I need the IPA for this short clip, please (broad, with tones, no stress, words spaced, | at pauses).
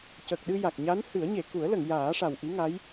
cə˨˩k̚ɗɨ˧ja˨˩k̚ɲa˧˥n hɨ˨˩˦ə̯ɲe˨˩˨ ku˨˩˦ə̯lə˨˩˨ŋ jaː˨˩˦ʂa˨˩wʔi˧˥ŋa˧˥j